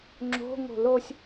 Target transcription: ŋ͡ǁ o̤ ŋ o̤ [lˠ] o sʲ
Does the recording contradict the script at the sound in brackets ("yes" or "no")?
yes